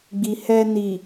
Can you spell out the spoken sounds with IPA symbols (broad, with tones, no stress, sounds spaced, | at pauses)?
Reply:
ɡ͡b i˨ h ɛ˧ n i˨